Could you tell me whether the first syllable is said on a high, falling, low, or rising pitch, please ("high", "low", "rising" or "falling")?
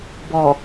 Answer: low